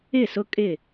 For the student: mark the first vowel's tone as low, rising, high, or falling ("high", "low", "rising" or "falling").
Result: falling